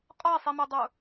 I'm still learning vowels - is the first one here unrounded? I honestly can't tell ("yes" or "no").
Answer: no